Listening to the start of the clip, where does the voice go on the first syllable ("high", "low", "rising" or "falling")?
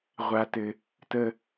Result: high